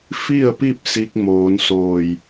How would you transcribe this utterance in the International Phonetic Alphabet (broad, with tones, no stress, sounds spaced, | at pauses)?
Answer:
f i˥˨ ə̯ p i˥˨ p̚ s i˧ k̚ m oː˩˧ n s oː˧˩ j